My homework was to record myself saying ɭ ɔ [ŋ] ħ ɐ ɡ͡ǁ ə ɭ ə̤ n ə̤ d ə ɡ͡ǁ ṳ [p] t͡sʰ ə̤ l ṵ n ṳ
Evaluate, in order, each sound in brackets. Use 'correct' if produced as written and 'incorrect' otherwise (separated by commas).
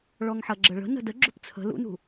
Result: correct, correct